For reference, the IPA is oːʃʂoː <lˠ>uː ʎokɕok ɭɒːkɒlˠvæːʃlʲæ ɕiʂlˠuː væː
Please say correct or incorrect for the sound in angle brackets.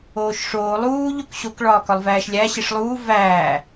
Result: correct